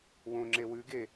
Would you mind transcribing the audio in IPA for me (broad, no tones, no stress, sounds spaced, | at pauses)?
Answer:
w õ ŋ͡ǁ e w ʉ ɡ e